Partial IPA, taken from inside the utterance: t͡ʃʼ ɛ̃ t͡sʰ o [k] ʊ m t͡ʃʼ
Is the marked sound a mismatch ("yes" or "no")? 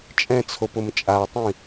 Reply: yes